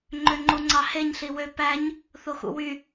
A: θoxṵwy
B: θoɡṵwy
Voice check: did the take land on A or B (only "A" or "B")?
A